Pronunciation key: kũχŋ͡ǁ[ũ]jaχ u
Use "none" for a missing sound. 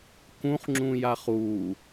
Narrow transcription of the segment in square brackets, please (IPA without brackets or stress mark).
ũ